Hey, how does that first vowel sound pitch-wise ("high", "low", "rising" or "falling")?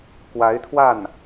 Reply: rising